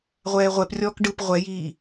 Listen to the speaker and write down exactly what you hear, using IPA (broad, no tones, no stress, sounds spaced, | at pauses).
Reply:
ʁʷ ɛː ʁʷ ɛ p rʲ ɔː k ɖ ɯ p ʁʷ ɛ j iː